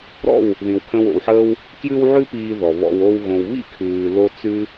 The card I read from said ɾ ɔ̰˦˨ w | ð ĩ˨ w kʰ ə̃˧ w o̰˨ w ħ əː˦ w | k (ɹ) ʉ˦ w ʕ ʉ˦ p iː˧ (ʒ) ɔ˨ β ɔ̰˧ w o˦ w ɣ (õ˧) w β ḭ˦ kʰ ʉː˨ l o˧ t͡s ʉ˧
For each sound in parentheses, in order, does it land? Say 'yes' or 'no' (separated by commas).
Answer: no, no, yes